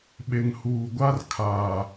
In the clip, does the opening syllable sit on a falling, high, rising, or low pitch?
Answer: low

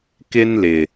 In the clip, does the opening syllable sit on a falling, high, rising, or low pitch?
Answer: high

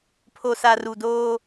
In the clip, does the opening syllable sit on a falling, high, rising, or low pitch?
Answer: low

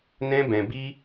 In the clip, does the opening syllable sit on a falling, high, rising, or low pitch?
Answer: high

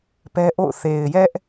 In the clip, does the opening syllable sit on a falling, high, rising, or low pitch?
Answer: high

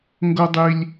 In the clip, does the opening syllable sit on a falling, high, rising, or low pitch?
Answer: high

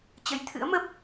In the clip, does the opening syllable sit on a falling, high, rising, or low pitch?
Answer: rising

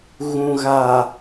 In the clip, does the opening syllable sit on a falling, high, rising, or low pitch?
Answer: low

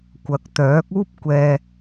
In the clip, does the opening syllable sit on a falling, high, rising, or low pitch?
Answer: rising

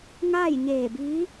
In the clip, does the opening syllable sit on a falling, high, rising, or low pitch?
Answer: falling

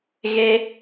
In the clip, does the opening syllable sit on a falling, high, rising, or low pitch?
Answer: high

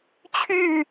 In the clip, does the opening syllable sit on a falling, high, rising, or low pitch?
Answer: falling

